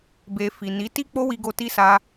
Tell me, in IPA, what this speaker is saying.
b e˨ f i˨ n i˨˦ t i˦ k͡p o˦ w i˧ ɡ o˧ t i˧ s a˧

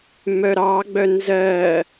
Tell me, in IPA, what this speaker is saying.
m œ ɾ ɑ ɡ͡b œ n z ɜ

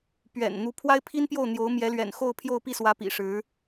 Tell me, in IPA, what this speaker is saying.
p ɥ ɛ̰˨˩ n n̪ u˧˥ pʰ w a˥ ɪ̯ pʰ i˥ n p j o˥˩ ʊ̯ n̪ j o˧˥ ʊ̯ m j ɛ˧˥ l ɥ ɛ̰˨˩ n x o˥˧ ʊ̯ pʰ j o˥˧ ʊ̯ p i˥˩ s w ä˧˥ p ḭ˨˩ ʂ ɻ̩˧˥

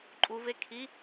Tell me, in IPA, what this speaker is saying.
ǃʼ u v e kʰ i

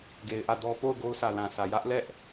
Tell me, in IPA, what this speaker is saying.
ɡ e˨ ɪ̯ ʔ ä˦˨ d ɔ˦ p o˦˨ ʊ̯ ɡ o˦ ʊ̯ sʰ ä˨ l ã˨ sʰ ä˨ j ä˦ ʔ l ɛ˦ ʔ

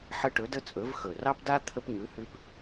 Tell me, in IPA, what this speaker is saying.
ħ ə˦ ʈ ɵ˨˥ d ə˦ t͡sʼ ɵ˨˥ v x ɵ˨˩ r ɑ˦ p d a˦ t̪ʰ ə˦ p ɲ ʉ˨˥ h ʉ˦ p

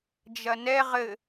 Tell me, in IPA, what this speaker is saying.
d͡ʒ ɐ n ɛ ʁ ɘ

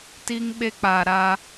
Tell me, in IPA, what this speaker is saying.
t i˦ ŋ ɓ e˦ k͡p a˨ ɾ a˦

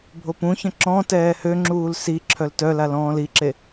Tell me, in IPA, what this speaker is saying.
bʱ o p ũ ç ə̃ ǁ ɔ̃ t ɛː h ø ŋ͡ǁ uː l s i ǁʰ œ l t œ l a l ɔ̃ː l i ǁ e

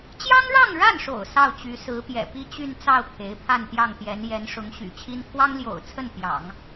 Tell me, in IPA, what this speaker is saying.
t͡ɕ j ɑ˥ ŋ ɻ ɑ˥˧ ŋ ɻ a˥˩ n ʂ o̰˨˩ ʊ̯ s ɑ˥˩ ʊ̯ t͡ɕ y˧˥ s ɹ̩˧˥ p j ɛ̰˨˩ p i˥˧ t͡ɕ y˥˧ n t͡s ɑ˥˩ ʊ̯ kʰ e˧˥ ɪ̯ pʰ a˥˧ n t̪ j ɑ˥˩ ŋ t̪ j ɛ˧˥ n j ɛ˧˥ n ʂ ʊ˧˥ ŋ ɕ y̰˨˩ t͡ɕʰ i˥ n kʰ w ɑ˥ ŋ l j o̰˨˩ ʊ̯ t͡sʰ ə˥˩ n p j ɑ̰˨˩˦ ŋ

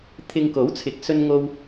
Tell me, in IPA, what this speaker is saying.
t̪ʰ ɪ˧ ŋ k o˨˥ w t͡sʰ ɪ˨˥ k̚ s ɵ˥ n ŋ o˥ w

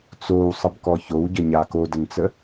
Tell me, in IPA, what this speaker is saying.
t͡s o w sˤ ə b k ɔ ç o w ɟ ə ɲ a k o d ə n t͡s ə

